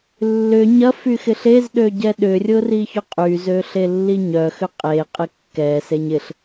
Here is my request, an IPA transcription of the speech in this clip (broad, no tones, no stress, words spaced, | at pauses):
lːʏ ɲɐfy xɪɬezɗø ɟɛɗʏrʲʊ riçʊqʼyzø ɬelːiɲœxʏ qʼe qʼɪkːɛseɲ ɪɬ